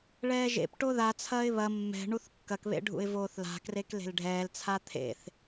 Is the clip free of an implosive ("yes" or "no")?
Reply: yes